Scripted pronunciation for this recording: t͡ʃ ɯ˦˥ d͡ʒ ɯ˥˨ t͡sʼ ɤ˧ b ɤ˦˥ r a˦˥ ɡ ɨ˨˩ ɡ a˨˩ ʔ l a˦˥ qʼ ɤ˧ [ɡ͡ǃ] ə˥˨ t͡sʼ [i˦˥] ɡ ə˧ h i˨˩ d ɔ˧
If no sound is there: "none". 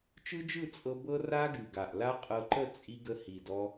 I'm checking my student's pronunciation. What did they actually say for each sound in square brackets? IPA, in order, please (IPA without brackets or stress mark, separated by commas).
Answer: ǃ, i˧